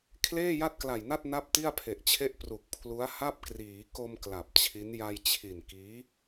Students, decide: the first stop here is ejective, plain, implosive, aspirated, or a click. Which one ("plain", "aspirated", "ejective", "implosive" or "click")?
aspirated